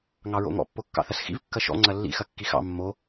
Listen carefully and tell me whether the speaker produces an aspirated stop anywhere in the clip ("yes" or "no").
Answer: no